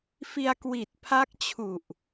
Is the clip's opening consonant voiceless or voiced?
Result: voiceless